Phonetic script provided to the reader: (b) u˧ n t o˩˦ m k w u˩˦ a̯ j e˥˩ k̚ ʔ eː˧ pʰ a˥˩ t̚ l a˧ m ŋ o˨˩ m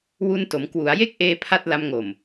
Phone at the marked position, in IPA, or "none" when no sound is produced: w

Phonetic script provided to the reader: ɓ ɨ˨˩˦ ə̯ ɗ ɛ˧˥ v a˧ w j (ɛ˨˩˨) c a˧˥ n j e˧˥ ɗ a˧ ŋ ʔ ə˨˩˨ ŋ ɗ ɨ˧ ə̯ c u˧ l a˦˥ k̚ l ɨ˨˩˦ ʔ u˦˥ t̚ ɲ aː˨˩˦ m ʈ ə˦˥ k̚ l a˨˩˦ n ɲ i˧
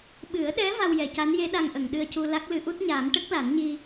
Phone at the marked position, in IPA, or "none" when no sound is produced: ɛ˨˩˨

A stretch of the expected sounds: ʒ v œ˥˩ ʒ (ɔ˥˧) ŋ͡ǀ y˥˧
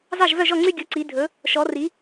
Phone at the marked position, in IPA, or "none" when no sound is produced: ɔ˥˩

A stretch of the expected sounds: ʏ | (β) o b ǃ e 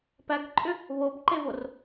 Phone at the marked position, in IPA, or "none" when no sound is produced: β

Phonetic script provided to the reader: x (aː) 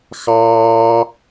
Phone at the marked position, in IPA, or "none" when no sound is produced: ɑː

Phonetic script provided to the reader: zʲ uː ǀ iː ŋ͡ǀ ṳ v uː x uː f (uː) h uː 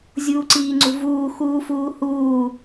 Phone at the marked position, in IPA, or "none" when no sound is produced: uː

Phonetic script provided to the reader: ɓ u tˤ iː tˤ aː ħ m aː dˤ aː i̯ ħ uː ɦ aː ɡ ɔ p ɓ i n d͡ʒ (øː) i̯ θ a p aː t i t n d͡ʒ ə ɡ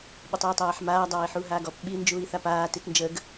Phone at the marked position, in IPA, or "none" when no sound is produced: uː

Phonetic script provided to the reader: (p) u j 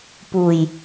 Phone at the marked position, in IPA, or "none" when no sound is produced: p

